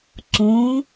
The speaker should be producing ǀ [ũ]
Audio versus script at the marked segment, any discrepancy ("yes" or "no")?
no